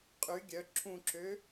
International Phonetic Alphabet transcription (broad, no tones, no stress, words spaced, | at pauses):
qʼy ɡʲœ ǁʰũǁø